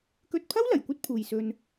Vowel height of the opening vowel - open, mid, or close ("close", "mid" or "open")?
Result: mid